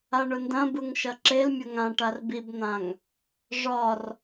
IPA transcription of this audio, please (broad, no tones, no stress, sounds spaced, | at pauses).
a ɳ ʊ n d ɐ̃ b ɯ ŋ ʃ ɐ ǁ e l mʲ ʊ ŋ ã ʈ a r b i b n̪ ã ŋ | ʐ ɒ r